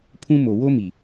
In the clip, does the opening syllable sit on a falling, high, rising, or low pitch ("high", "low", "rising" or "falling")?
high